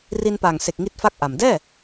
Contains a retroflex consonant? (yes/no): no